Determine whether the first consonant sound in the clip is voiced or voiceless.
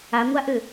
voiced